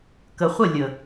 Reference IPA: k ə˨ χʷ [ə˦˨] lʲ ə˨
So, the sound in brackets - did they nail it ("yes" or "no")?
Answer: yes